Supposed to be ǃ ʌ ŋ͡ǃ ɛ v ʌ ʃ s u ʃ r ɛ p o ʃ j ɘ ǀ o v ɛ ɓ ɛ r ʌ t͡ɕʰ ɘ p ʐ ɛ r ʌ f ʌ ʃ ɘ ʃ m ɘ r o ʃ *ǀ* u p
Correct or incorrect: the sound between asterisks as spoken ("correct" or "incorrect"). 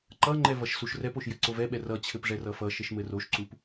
correct